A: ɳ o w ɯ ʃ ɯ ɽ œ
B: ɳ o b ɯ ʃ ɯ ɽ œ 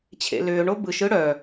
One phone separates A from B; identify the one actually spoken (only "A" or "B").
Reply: B